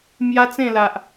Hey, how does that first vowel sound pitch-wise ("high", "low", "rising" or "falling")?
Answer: high